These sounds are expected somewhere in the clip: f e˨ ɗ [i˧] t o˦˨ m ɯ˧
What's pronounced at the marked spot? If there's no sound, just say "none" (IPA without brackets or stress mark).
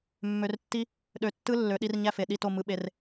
i˦˨